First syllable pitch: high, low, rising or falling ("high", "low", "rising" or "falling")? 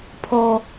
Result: high